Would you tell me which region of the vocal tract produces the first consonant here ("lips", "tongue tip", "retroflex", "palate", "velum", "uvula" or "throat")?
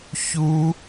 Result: palate